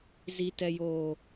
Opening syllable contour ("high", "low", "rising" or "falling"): low